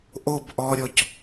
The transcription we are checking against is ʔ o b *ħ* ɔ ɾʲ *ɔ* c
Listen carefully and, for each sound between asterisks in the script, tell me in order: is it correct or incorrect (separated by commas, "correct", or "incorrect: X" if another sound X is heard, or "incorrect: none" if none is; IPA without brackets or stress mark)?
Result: incorrect: ʔ, correct